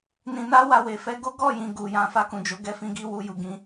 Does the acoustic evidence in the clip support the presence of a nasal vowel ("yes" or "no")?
yes